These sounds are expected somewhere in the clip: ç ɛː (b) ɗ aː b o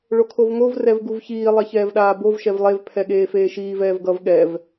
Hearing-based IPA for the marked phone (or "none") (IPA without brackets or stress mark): v